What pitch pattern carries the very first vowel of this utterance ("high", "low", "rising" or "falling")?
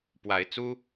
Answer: rising